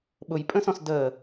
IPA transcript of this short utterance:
ɓʊjpʼə̃sɔ̃s də

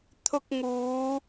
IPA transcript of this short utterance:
t̪ʰʊ˧k̚ŋuː˨˧

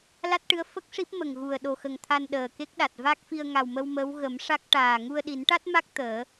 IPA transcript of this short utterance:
la˦˥t̚ʈɨ˧˥ə̯ fə˦˥k̚ʂi˦˥p̚mə˨˩ŋ ɣu˨˩ə̯ ɗo˨˩xə˨˩ŋt̪ʰa˧n ɗəː˨˩ke˦˥k̚ɗa˨˩t̚ va˦˥k̚fi˧ə̯ ŋa˨˩wmə˧w mə˧˥w ɣə˨˩˦m ʂa˦˥k̚ʈaː˨˩ ŋu˧ə̯ɗi˨˩˦nʈa˦˥t̚ma˦˥k̚ t̪əː˨˩˦

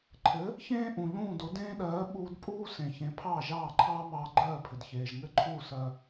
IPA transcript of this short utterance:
ǃʰɘ˩˥ | çẽː˥ ʔũ˩ʎũː˥˩do˩˥ dẽː˥ɗɜː˩˥ ɓuː˧dpʼuː˥ sẽ˩çẽ˩˥ pʰɑː˥˩ʒɑː˥˩ǃʰɑː˥ mɑː˧ɡ͡ǃɜː˥˩pʰɘ˩d çeː˩ʒŋɘ˥˩ǃʰuː˥˩ sɜ˧

